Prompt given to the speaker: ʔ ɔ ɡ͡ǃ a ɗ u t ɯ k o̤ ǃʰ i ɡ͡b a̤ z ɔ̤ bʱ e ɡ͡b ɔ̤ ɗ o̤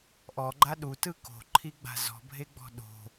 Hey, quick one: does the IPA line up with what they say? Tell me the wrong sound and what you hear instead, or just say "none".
none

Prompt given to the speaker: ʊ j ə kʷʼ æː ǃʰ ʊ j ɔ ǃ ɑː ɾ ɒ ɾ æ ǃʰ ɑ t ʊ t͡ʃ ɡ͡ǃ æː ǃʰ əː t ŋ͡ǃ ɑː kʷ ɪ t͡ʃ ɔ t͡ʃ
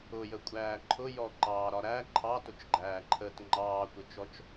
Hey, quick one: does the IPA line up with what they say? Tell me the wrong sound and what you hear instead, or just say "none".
none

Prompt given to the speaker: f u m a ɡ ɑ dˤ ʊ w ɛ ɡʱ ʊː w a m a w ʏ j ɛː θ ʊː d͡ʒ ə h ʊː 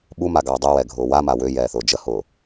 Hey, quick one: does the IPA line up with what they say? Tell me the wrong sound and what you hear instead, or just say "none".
f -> ɓ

